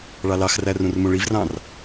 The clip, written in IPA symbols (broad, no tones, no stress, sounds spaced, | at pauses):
ɭ ɑ l ɑ x r æ r ũ r m ũ ɭ i v r ɑ̃ r